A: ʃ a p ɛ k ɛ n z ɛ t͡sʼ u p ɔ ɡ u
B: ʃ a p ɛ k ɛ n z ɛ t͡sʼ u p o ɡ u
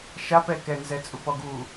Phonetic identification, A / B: A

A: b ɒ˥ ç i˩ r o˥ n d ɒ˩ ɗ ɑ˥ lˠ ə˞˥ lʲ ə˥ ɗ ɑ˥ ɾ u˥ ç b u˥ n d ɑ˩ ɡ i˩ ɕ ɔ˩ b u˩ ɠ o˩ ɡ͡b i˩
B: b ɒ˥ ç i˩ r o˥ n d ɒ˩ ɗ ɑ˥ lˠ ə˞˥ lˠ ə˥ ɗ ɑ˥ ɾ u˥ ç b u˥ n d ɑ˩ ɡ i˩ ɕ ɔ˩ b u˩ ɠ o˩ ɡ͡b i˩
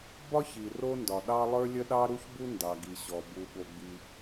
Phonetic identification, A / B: A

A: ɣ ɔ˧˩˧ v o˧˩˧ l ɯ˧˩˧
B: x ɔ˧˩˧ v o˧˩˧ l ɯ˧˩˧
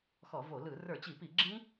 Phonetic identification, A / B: B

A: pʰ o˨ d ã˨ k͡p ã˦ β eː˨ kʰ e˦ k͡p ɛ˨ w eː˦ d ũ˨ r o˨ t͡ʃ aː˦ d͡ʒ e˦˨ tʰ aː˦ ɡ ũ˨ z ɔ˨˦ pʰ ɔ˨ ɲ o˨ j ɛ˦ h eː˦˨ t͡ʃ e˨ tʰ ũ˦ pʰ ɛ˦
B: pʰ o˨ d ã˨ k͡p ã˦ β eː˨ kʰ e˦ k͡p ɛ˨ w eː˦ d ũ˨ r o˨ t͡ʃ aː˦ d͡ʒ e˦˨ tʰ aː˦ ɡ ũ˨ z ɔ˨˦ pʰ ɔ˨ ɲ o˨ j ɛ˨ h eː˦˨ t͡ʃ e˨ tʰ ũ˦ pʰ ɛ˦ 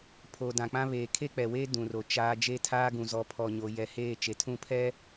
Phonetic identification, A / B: B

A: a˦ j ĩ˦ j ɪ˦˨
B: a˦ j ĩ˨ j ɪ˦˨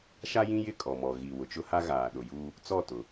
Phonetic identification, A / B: A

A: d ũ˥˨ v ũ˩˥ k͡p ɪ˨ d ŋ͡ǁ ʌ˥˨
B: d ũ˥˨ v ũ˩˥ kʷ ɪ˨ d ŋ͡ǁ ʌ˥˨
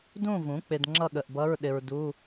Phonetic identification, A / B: A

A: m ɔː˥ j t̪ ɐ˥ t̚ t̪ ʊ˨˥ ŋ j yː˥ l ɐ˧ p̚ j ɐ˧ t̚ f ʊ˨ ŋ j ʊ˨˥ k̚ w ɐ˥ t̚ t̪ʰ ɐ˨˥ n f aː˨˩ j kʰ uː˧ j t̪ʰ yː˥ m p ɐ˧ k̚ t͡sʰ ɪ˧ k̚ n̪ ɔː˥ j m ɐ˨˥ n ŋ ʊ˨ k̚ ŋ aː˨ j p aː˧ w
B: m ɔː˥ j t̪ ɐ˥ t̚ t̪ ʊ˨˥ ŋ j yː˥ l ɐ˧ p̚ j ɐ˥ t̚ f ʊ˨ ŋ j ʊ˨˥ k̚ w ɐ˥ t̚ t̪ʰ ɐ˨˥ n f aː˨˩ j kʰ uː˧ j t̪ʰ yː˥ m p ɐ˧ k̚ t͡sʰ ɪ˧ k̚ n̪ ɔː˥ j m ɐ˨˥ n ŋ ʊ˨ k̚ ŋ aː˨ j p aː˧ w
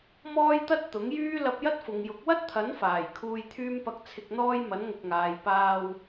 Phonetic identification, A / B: B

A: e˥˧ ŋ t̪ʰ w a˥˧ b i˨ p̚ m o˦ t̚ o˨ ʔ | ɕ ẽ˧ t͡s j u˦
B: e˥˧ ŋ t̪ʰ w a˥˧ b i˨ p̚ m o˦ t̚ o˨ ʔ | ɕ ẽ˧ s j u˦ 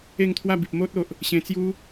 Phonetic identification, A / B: A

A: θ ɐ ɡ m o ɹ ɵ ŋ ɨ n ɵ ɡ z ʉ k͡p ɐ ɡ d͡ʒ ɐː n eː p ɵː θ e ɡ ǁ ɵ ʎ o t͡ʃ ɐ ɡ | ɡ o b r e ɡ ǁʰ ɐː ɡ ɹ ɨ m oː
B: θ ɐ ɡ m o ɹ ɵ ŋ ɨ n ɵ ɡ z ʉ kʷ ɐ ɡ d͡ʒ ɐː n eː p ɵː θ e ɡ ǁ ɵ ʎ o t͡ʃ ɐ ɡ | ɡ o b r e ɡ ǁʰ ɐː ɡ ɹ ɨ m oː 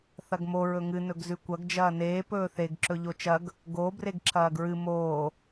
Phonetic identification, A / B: B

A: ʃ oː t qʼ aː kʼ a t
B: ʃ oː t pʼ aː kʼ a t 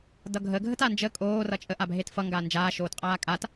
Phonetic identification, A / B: A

